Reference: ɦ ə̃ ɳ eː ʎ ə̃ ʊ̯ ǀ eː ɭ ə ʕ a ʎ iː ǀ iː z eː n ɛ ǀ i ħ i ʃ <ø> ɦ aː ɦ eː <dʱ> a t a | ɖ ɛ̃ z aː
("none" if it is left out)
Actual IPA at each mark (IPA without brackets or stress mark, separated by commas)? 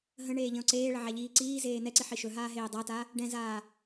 ɵ, dˤ